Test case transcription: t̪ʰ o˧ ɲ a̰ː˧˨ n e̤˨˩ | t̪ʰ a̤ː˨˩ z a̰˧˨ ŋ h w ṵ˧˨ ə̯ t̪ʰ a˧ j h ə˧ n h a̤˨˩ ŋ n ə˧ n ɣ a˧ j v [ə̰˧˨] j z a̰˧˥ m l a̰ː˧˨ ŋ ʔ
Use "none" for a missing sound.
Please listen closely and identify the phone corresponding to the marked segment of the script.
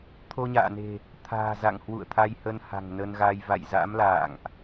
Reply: a̰˧˨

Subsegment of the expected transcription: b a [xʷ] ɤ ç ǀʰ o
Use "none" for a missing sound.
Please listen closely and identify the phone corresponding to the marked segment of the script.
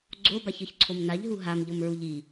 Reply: ç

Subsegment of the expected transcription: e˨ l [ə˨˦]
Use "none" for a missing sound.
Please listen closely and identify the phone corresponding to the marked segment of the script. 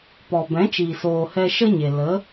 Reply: ə˨˦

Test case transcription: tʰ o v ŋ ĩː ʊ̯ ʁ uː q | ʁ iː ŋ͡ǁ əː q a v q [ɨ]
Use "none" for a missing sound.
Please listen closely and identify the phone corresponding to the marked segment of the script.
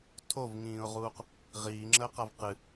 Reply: ɨ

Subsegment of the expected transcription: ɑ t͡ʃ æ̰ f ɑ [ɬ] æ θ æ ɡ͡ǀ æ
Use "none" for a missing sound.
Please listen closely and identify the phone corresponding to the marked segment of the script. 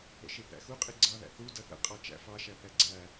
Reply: ʃ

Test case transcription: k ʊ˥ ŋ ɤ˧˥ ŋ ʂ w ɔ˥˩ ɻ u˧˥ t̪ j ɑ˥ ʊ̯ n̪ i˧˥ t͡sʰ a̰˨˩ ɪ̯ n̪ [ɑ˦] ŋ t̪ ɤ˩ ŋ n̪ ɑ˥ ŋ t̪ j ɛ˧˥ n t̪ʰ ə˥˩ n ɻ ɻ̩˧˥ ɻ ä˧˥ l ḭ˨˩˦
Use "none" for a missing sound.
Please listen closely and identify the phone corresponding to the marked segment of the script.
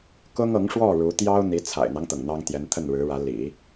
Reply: ɑ˦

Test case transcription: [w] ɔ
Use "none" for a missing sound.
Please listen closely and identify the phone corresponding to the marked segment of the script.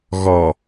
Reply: ɣ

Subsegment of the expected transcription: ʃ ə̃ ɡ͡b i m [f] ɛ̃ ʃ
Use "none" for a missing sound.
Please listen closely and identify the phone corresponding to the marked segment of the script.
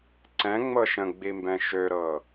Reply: b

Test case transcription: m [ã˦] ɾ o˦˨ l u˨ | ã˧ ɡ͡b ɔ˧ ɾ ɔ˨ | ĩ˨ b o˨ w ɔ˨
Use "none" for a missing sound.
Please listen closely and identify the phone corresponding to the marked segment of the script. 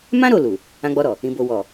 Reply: ã˦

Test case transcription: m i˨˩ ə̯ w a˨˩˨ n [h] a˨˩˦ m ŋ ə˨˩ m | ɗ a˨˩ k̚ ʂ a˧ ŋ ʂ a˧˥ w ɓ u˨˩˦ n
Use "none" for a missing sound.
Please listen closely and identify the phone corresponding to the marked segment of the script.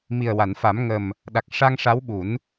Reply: f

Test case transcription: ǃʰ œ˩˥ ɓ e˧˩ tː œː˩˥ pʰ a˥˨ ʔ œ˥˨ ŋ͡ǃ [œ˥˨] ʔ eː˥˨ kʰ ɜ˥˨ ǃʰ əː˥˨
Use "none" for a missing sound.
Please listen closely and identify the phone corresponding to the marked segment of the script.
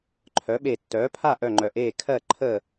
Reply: œ˧˩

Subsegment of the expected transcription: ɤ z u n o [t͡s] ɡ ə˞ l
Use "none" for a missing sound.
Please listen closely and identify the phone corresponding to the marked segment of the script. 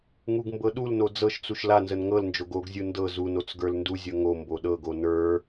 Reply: t͡s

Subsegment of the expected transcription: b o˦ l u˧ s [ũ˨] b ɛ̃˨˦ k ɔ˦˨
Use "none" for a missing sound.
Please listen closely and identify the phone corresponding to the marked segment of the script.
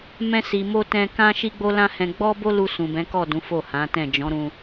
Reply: ũ˨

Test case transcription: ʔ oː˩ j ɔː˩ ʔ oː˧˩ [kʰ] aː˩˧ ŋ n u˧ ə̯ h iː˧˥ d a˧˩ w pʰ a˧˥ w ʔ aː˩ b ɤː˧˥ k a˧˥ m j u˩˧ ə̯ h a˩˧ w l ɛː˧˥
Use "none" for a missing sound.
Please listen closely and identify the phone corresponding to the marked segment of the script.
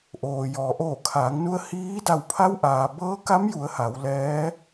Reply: kʰ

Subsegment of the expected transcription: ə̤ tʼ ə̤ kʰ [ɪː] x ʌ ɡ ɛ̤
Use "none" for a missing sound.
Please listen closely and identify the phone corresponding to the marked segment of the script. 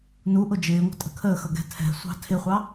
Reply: əː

